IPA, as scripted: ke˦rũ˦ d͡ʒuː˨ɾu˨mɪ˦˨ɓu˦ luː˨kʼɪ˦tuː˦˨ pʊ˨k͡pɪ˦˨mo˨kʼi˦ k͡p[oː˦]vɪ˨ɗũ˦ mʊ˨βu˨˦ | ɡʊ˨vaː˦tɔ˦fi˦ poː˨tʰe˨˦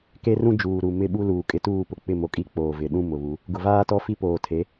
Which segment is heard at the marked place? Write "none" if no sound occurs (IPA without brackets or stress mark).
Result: oː˨